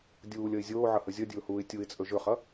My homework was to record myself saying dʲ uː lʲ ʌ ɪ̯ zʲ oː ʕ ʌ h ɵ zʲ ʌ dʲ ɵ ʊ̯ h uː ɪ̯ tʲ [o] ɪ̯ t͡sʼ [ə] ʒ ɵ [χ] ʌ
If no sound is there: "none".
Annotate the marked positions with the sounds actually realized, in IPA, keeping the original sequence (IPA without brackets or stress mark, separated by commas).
u, ɵ, χ